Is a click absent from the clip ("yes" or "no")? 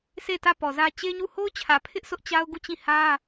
yes